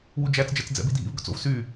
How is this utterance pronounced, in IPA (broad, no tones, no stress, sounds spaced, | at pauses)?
w u d͡ʒ æ t͡s d͡ʒ ɛ t͡s d͡z ɛ̰ b i dʱ ḭ v ɡ ɵ t͡s o̰ v s y